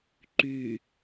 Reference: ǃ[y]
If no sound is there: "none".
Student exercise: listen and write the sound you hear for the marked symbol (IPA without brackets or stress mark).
y